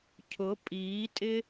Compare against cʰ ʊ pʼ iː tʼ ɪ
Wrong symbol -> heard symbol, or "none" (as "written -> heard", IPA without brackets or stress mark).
none